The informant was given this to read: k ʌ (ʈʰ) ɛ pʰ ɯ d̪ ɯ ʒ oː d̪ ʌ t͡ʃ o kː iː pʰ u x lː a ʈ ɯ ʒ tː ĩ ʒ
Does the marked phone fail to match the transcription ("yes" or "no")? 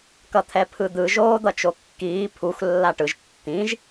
yes